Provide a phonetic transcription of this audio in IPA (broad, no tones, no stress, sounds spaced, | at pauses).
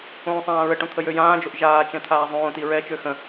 õː sˤ ãː ɹ ə ʈ õ t̪ʰ ə j ø j ãː d͡ʒ o ʔ ʒ aː t͡ʃ ɛ̃ t̪ʰ aː zˤ õː t i ɹ ɛ t͡ʃ ø x ə̃